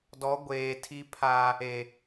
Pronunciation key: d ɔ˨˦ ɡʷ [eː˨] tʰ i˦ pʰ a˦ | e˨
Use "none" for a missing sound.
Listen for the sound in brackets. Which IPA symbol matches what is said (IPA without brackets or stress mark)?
eː˨